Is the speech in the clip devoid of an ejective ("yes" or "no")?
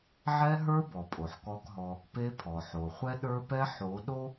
no